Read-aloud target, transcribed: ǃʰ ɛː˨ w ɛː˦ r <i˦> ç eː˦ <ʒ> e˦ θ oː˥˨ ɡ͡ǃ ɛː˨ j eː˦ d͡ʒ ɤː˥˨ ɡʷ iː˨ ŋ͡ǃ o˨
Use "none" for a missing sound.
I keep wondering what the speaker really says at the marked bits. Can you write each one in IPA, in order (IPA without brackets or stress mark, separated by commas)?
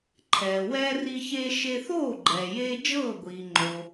i˦, ʃ